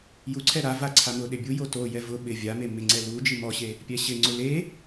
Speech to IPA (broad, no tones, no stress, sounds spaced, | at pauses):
j u ǀʰ ɛ ɾ a v a ǀʰ a m ʊ ɗ ɪ bʲ u j o t o j ɛ v ʊ ɓ ɪ vʲ a m e m ɪ ŋ͡ǀ ɛ l u d͡ʒ i m ɔ ɕ e | pʲ ɛ ɕ ɪ ŋ͡ǀ ʊ l e